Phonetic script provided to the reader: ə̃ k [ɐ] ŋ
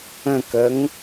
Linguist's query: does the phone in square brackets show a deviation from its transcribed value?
yes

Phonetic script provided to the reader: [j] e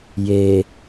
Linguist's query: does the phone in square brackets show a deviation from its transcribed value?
no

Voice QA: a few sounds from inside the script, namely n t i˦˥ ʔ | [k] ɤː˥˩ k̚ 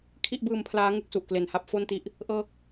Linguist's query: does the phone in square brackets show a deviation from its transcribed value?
yes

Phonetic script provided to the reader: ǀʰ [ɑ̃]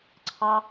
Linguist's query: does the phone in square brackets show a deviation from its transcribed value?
yes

